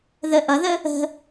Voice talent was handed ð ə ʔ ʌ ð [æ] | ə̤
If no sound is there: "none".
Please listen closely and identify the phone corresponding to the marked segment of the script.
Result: ə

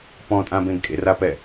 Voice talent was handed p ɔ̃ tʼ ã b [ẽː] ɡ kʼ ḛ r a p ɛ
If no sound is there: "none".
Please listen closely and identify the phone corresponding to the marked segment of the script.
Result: ẽ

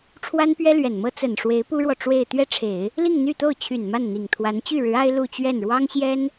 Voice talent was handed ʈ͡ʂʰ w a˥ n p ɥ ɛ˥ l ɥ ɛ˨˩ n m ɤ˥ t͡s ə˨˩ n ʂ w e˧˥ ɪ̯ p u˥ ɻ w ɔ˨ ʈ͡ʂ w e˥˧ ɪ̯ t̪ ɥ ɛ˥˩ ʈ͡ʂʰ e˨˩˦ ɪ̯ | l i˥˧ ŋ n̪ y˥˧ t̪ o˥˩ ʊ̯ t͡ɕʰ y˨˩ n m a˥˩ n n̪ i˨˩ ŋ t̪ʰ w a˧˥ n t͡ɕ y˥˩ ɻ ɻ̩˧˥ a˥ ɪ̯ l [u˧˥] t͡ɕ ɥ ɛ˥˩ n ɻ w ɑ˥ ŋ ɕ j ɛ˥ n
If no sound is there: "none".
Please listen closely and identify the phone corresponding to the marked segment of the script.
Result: u˥˧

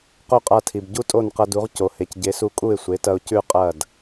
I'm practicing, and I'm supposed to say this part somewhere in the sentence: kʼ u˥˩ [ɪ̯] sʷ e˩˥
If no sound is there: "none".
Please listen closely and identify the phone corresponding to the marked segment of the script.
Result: ɪ̯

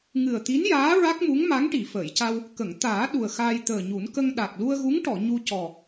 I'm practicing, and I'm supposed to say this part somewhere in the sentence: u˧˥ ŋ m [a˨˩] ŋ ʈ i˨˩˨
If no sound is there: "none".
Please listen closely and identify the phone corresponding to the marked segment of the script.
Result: a˧˥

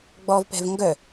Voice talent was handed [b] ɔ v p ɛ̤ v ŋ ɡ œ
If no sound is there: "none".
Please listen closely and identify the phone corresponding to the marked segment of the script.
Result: ɡ͡b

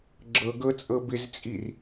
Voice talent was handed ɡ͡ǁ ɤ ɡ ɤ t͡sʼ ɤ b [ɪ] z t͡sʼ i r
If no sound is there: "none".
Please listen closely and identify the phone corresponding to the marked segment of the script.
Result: ɪ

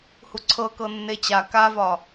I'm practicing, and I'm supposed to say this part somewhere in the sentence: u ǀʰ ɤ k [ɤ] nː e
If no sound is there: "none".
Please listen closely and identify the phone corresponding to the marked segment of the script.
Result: ɤ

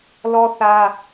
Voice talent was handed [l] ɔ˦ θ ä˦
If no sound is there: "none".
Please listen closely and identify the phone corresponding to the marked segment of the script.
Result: l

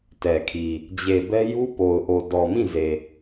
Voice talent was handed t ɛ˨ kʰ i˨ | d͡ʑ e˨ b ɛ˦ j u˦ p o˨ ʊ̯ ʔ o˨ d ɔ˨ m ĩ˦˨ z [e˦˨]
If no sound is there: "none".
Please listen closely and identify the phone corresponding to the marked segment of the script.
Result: e˨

